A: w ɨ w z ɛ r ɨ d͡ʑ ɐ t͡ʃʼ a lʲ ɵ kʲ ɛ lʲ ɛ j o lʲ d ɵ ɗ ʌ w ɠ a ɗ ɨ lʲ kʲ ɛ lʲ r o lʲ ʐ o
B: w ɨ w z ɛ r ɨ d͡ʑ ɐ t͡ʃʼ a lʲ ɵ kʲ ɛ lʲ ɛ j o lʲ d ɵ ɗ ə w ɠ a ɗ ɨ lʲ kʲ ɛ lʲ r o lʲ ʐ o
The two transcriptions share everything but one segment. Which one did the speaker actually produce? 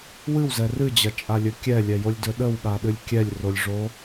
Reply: B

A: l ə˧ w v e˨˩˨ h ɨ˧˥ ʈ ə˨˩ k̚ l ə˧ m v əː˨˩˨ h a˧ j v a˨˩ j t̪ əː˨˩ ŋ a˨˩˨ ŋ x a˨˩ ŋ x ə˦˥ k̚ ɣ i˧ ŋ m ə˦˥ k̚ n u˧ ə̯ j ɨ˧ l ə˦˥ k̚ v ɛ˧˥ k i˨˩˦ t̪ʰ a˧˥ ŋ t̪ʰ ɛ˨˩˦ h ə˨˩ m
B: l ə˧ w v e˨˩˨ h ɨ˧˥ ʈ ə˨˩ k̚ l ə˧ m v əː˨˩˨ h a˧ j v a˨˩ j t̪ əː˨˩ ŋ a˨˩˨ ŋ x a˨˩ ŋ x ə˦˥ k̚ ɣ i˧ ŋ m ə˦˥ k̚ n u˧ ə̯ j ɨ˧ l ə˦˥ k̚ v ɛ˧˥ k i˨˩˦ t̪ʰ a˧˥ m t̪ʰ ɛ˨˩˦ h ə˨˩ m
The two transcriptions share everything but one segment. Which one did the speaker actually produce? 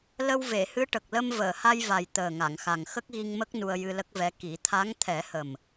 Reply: A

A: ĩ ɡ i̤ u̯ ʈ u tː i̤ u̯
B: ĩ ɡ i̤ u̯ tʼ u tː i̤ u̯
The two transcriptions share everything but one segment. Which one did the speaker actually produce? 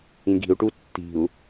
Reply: A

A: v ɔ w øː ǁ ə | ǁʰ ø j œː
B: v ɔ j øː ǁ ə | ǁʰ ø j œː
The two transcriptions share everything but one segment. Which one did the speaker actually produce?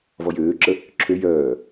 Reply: B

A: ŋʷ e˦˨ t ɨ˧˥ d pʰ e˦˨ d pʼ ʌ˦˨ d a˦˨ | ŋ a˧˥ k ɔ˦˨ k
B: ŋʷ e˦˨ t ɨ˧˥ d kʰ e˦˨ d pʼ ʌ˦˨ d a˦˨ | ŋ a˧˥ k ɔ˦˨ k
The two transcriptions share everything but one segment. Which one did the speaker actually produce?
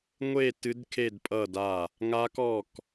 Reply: B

